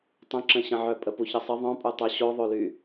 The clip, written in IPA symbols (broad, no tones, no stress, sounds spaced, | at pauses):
tˤ ə̃ ǁ ə̃ ɕ ə̃ ʕ œ pʼ ə p u ç ə sˤ ə ðˤ œ̃ pʼ u tˤ o ɕ o ðˤ o l y